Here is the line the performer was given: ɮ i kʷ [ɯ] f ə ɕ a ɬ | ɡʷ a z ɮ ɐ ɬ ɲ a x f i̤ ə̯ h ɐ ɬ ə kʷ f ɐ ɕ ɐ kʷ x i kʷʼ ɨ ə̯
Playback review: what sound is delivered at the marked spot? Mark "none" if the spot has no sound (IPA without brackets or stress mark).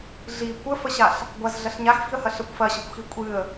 ə